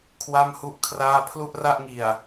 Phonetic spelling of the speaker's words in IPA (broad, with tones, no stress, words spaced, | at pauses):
kʰwa˥˩mhu˥˩ʔkʰraː˥˩ pʰlu˥˩ʔra˥˩ʔŋi˨˩a̯